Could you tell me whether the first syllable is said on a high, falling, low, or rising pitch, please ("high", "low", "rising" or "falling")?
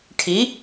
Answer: rising